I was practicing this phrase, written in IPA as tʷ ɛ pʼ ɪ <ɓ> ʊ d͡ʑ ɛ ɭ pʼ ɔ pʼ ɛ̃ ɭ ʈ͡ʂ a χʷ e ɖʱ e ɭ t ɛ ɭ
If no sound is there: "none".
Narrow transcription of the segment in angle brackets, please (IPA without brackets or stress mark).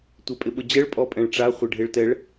ɓ